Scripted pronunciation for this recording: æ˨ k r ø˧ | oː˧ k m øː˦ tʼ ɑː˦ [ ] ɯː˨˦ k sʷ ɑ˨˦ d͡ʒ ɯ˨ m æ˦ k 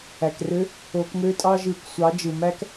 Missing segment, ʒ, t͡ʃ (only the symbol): ʒ